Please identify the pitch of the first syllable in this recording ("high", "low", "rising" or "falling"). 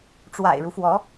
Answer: low